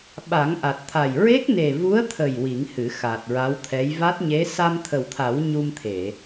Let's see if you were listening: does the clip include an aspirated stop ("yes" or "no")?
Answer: yes